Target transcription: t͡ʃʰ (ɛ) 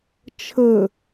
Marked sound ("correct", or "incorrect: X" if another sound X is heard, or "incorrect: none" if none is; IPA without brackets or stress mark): incorrect: ə